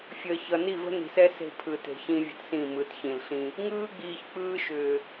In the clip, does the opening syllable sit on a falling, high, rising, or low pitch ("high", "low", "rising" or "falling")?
low